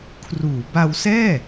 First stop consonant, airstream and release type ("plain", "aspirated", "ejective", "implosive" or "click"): aspirated